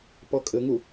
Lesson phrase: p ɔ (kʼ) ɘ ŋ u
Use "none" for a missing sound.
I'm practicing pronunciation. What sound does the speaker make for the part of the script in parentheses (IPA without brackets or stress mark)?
kʼ